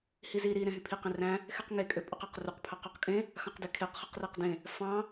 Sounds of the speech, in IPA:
hizi ɾi ɾẽɦypʰiq ẽræ̃ | xeqŋe kʼøpʼuqæqruq pʰɑqøqkʼẽ | xɑ̃qdekʰeq χɯqræqdẽ | fɑ̃

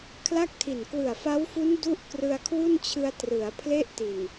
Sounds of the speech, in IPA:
kʰla˥˩k̚tʰi˨˩n kwɯ˨˩a̯fa˦˥wfu˦˥n du˥˩ʔ krɯ˧a̯kʰwu˥˩nt͡ɕʰɯ˧a̯ trɯ˩˦a̯ pʰle˥˩ʔti˨˩n

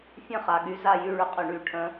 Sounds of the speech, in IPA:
fʲə̃˥˨χa˩˧˩ɠy˨˥ za˥˨jy˥˨ɭʏ˨˥ qʼʏ˧˩˧ɳy˧˩˧ʈʰə̃˨˥

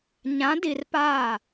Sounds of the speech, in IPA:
ɲã˨˦di˨rpaː˦˨

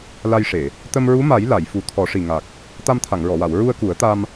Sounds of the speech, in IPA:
la˧jʂe˨˩˨ | t̪ə˧mɹu˧˥ma˨˩˦j la˨˩˨jfu˨˩˦ t̪ʰɔ˨˩˦ʂi˨˩ŋa˨˩k̚ | t̪a˧mt̪ʰa˨˩˨ŋɹɔ˨˩˨wa˨˩˨w ɹu˧ə̯ku˨˩˦ə̯t̪a˧m

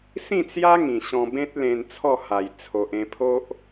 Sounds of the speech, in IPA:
sĩ˥˧t͡sja˦ ŋĩ˨˩ɕɔ̃˧ bẽ˦t̚lẽ˧n t͡sʰɔ˥˧ha˨˩j t͡sʰo˨ʔẽ˧pʰo˦ʔ

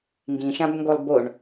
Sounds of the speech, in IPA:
ŋɡĩʃãbŋɡolˠ boɳ

